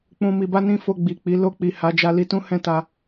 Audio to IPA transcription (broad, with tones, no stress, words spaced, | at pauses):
k͡pũ˨mi˨ba˧ nĩ˦fo˧ɡ͡bi˨k͡pi˨˦ lo˧k͡pi˨ ha˨˦d͡ʒa˧ li˧tũ˦hɛ̃˦˨ta˧